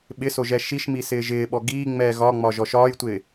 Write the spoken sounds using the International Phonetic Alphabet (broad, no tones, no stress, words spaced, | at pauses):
ɓɪsoʒɛ ʃiʃmisɪː ʒɪːɓɔ ɡiːŋ͡mɛː ɣɒŋ͡mɒʒɔ ʃɒːjtʷɪː